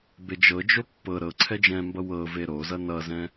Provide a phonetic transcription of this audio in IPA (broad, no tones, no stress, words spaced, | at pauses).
bed͡ʒɤ d͡ʒopːɤ ɾɤ ǀʰɛd͡ʒɛ̃mbʌ wɤ veɾozʌ nʌzɛ̃